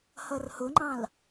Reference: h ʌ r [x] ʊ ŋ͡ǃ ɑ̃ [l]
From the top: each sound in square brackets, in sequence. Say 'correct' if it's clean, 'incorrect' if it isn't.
incorrect, correct

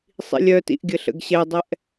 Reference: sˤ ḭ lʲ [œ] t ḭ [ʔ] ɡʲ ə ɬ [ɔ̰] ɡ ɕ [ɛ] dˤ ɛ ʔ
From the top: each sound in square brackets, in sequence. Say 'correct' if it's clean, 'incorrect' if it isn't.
correct, correct, incorrect, correct

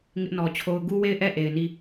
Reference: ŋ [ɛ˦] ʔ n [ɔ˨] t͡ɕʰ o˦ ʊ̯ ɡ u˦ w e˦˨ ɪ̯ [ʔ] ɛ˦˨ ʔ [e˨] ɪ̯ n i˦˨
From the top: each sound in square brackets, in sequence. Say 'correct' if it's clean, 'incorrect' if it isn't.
incorrect, correct, correct, correct

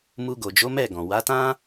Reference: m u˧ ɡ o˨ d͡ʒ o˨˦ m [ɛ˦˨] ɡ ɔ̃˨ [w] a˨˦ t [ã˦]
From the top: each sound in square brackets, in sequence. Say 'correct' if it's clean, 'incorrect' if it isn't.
correct, correct, correct

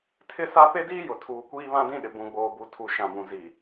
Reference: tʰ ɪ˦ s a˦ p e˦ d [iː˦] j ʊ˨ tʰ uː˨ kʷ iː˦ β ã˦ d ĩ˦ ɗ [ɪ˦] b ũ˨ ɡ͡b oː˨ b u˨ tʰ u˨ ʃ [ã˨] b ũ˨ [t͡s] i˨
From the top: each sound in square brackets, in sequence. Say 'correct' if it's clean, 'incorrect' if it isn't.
correct, incorrect, correct, incorrect

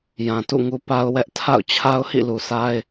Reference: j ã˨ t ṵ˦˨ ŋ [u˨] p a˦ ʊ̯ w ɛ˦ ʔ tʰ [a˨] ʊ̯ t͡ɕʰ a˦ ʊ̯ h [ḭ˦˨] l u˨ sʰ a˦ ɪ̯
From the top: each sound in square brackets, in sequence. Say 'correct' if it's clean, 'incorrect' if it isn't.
incorrect, incorrect, correct

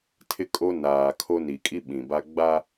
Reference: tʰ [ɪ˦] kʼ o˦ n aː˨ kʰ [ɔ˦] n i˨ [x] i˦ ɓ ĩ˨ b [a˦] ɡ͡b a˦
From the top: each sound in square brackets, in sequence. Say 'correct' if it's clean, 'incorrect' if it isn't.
correct, incorrect, incorrect, correct

